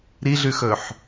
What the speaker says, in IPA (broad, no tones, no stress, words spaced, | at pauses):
ɾiɮʉxɵħ